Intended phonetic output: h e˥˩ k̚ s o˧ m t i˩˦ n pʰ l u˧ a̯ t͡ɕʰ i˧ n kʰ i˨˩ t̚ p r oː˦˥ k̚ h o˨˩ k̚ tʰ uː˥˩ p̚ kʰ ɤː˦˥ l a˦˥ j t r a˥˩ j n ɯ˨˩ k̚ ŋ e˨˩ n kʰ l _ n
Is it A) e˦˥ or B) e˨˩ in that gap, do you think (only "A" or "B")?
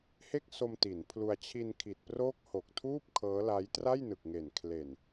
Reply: B